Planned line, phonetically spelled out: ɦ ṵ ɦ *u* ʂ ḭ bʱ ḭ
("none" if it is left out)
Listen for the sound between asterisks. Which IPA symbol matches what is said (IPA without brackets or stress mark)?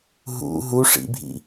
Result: u